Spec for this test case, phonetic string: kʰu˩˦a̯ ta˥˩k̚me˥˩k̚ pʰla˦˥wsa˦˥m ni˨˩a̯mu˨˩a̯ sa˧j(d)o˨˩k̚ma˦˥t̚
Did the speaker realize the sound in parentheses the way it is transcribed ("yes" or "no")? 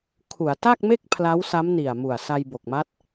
no